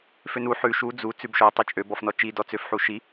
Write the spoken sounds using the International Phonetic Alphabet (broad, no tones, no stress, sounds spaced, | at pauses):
f ø n u ħ ʉ ʃ u d͡z u t͡s ʉ b ʃ ɔ tˤ ʉ t͡ʃʼ ø b ɔ f n ɔ t͡ʃ i d ɔ t͡s ø f ħ u ʃ i